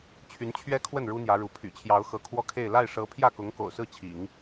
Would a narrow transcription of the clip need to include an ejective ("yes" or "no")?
no